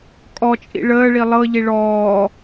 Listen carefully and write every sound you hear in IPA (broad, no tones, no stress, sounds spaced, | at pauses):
kʼ ɔ t͡ʃʼ ḭ ɭ əː ɭ i lˠ ɤ ʎ i ɭ ɔː